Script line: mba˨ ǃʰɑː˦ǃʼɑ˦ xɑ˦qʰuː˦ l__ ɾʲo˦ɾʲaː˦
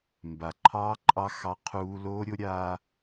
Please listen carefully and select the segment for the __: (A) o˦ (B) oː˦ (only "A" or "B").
B